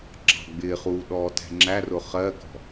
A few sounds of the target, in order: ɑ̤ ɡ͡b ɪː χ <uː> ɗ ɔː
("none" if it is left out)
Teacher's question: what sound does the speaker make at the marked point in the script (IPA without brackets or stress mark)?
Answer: uː